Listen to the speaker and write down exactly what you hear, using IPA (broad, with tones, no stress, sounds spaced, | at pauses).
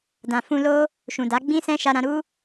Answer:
d ã˨ f ũ˧ l o˦ | ʃ ũ˨ d a˨˦ ɡ͡b ĩ˦ s ɛ̃˦ ʃ a˧ ɾ ã˧ ɾ u˦